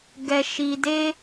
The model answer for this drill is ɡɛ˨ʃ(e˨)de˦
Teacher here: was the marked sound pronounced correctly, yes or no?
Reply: no